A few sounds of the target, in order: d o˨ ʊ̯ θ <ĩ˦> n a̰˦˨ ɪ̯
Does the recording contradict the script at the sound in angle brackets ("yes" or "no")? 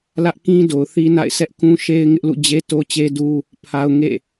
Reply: yes